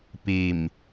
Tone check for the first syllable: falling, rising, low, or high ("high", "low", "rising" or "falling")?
low